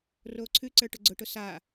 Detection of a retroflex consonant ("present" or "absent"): present